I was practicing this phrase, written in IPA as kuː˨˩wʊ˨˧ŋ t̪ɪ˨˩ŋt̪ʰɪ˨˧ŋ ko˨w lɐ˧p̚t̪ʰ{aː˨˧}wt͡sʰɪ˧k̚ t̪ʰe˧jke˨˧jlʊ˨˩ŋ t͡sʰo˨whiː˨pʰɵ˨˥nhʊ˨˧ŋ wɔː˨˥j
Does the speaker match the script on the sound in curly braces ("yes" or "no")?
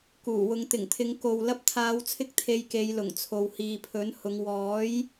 yes